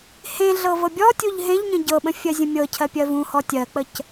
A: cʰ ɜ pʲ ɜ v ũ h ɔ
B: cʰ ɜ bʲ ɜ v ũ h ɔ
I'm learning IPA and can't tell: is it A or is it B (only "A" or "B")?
A